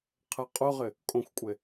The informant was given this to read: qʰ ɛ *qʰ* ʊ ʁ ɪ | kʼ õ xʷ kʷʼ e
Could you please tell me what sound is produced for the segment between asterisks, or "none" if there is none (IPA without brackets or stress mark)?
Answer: qʼ